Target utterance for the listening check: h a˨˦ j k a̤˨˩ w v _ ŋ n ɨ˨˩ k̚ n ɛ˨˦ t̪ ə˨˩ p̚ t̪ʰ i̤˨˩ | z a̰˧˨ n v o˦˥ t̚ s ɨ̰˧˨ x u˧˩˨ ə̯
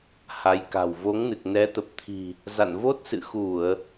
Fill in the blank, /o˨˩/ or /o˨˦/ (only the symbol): o˨˦